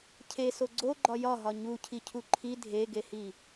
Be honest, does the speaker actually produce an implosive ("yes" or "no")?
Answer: no